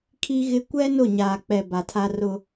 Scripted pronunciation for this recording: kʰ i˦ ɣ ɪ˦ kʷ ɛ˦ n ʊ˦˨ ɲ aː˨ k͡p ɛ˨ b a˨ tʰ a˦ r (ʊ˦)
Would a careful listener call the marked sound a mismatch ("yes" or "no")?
no